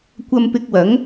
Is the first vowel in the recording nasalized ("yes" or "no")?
no